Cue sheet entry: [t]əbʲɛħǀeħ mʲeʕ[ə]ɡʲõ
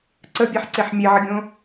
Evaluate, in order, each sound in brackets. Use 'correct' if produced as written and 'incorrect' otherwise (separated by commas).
incorrect, correct